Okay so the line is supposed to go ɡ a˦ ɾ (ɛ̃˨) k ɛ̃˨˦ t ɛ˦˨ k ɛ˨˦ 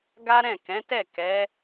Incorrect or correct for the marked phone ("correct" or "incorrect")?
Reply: incorrect